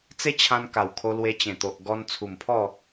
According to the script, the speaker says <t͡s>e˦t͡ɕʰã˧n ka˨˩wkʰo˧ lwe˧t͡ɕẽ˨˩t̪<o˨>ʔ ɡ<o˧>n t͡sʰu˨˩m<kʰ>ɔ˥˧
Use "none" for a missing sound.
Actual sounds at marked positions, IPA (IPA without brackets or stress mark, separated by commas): t͡s, o˨, ɔ˧, pʰ